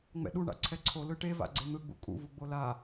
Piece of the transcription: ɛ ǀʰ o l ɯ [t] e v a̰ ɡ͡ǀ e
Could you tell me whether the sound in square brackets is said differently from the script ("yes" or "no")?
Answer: yes